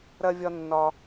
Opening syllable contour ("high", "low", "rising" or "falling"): high